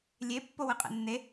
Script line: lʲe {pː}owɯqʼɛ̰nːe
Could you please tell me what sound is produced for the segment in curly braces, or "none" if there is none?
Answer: pː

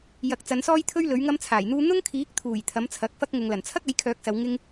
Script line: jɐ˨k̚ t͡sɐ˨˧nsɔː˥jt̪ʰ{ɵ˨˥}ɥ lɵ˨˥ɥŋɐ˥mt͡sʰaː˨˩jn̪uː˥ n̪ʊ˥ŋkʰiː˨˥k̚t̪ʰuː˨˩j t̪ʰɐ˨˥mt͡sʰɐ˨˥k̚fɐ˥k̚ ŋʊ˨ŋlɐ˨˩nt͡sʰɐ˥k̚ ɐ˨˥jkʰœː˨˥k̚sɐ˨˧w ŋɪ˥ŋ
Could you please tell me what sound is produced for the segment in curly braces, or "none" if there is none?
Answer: ɵ˥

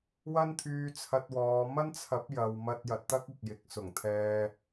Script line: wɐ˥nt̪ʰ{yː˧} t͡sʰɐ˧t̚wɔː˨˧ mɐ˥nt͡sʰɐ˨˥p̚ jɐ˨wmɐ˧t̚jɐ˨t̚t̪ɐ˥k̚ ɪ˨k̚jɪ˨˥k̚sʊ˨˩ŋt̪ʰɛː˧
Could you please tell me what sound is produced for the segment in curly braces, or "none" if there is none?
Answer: yː˧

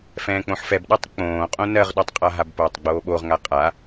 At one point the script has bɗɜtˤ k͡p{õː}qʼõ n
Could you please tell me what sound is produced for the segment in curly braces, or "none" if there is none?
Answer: õː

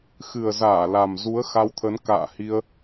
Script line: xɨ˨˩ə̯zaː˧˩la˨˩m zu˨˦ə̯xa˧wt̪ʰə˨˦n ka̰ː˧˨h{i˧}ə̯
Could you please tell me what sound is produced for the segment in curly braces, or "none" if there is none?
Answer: i˧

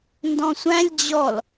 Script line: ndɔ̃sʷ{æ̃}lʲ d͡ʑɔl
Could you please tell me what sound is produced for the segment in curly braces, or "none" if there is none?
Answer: æ̃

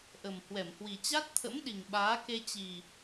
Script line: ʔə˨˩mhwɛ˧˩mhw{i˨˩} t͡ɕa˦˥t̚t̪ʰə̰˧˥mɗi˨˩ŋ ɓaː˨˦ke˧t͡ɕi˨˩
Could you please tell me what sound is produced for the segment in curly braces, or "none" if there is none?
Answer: i˨˩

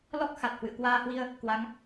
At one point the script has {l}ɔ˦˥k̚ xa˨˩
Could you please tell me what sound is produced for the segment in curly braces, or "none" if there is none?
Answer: l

